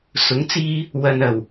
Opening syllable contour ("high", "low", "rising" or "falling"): rising